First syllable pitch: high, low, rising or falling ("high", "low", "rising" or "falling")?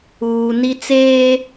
low